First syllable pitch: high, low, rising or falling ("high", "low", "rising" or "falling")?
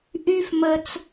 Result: high